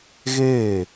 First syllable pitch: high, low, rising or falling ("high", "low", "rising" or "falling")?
falling